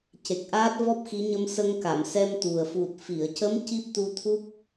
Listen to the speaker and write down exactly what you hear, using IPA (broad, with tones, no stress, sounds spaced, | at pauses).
c e˨˩ k̚ ʔ aː˦˥ t̚ v ɔ˦˥ p̚ x i˧˥ ɲ ə˧ m s ə˧ ŋ k a˨˩˨ m s ɛ˧ m t̪ u˨˩ ə̯ f u˨˩ t̚ f i˨˩˨ ə̯ c ə˧˥ m c i˦˥ p̚ t̪ u˧ t̪ʰ u˦˥ p̚